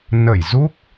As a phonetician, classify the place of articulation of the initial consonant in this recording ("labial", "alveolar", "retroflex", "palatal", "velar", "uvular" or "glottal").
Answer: alveolar